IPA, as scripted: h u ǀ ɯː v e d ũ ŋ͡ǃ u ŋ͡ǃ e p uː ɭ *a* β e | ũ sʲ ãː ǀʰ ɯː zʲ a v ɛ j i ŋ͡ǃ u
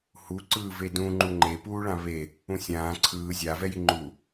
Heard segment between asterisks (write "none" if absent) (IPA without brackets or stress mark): ã